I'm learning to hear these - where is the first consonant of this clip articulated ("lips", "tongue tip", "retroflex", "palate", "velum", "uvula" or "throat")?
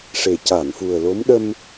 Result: retroflex